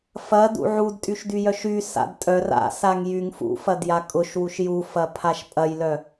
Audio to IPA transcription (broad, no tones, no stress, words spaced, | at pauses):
fɐdṵ ʕudtʼyʃdyjœʃ ysa̰d tʼœr a̰saŋ jyŋ fṵfɐdja kʼʊʃwuʃ jufɐpʰaʃ pʼɐjlœ